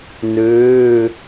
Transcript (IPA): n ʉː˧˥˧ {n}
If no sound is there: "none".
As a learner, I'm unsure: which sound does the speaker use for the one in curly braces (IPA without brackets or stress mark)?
none